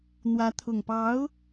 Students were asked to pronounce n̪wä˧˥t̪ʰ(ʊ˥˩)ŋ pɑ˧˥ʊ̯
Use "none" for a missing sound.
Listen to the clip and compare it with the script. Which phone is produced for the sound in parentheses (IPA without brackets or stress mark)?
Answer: ʊ˨˩